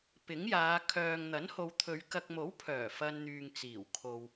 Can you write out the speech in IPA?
p ɪ˨˥ ŋ j aː˨˧ kʰ œː˨ ŋ n̪ ɐ˨˥ n h o˨ w t̪ʰ ɵ˨˧ ɥ k ɐ˨ k̚ m o˨˥ w pʰ œː˨˩ f ɐ˧ n n̪ yː˨ ŋ t͡s iː˨˩ w kʰ o˨ w

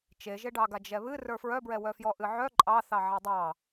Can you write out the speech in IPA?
t͡ʃ e ʒ e ɖ ɑ ɡ a d͡ʒ ɛ β ɨ r ə˞ f ɹ œ b ɹ ɛ w œ f j ɔ ʔ ɨ ʕ œ ǃʼ ɑ θ ɑ ʕ a dˤ ɑ

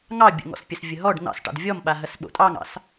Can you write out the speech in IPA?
ŋ ɑ bʲ ə̰ ŋ ɔ̰ s pʲ ə s vʲ ə ɦ ɔ ɖ n̪ ɑ̰ s ʈ ɑ̰ d vʲ ɔ m ɓ a ɦ ɐ s ɓ o̰ tʼ ɑ ŋ ɑ̰ s

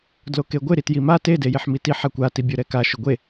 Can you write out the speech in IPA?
d l o k e ɡʷ ɪ ɾ i t j i m a t e d e j e ħ m i t i ħ a kʷ a t i bʲ ɔ ɾ ɛ k a ʃ ʊ ɡʷ e

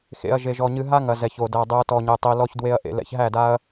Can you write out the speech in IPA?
x ḛ˨ ɐ̯ ʒ e˨ ʒ ɔ˨ ɲ ɨ˧ ɦ a˦ ŋ ɐ˨ z ɛ˨ ç o˨ d æ˧ dˤ ɨ˨ ɐ̯ t ɔ˨ ɲ e˨ tˤ i˨ l ɔ˧ ç d w e˧ ɐ̯ ʔ ḛ˨ l ɛ̰˧ ç ɦ æ˦˨ d a˦ ɐ̯

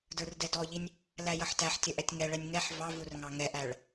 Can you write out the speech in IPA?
d ə˞ r d ɛ d ɔ ʎ i nʲ | l æ j ʌ ħ t æ ħ tʲ ə ʔ ɛ tʲ ŋ ɛ ɭ ɛ nʲ ŋ ɛ ħ v ɑ v u r ŋ ɑ ŋ ɛ ʔ æ ɭ

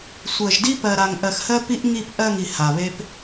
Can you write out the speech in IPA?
sʷ ɜ˨ ʒ d i˦ p ɜ˨ ɾ a˨ ŋ ʔ ɜ˨ x h ɜ˦ p i˦ ʔ ŋ i˦˨ p ʔ ɜ˦˨ ŋ i˨ h a˨ β e˦ p

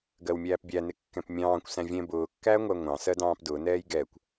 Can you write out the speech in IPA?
ɡ ɜ w mʲ æː p bʲ æ n ɪ kː ɛ̃ p mʲ ɑ̃ː kʷ s æ̃ vʲ ɛ̃ b ʊː kː æː ŋʷ æ ŋʷ ɑ̃ s ɜ d ɑ̃ː p d ʊː n ɛː j ɡ ɛː kʷ

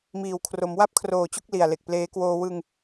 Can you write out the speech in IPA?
m iː˩˦ w kʰ r o˩˦ m w a˥˩ p̚ kʰ r oː˨˩ t͡ɕ u˥˩ k̚ l i˨˩ a̯ l e˨˩ k̚ p l eː˦˥ k w oː˧ w ɯ˧ ŋ

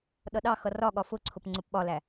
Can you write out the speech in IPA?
ɗ ʌ ɗ ɑ x ʌ r ɒ ɠ ɒ f ʊ ǀʰ ʊ p ŋ͡ǀ ʊ p ɓ ɒ l æ

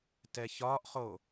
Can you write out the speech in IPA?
t ɛ ç ɒ ʔ χ o

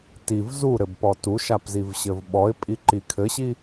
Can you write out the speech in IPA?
t i v z u ɾ ɘ b p ɔ t u ʃ a p z i v ɕ ɘ v ɓ ɔ ɪ̯ pʼ i ǃ i kʰ ɘ ɕ i

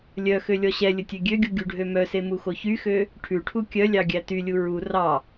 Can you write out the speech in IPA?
lʲ œ x ø lʲ ɔ ɕ ɛ lʲ ɵ tʲ ø ɡʲ ø ɡʲ u ɡʲ u ɖʱ ø m œ s e m u x o ç y x ø | ʈʰ ʉ ʈʰ u kʲ œ lʲ ɑ ɡʲ æ t y lʲ u ɹ u r ɑ

